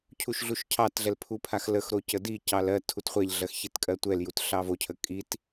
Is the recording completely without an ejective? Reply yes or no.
no